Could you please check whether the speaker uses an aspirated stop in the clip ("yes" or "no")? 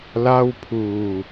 yes